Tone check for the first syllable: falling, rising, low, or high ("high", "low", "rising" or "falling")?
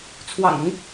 low